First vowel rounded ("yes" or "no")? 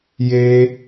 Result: no